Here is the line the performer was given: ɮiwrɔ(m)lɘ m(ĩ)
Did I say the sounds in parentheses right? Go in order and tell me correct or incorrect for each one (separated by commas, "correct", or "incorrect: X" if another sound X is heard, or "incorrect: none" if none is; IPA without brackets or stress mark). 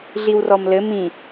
correct, correct